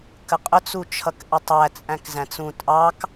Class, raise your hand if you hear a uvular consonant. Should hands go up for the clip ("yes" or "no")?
yes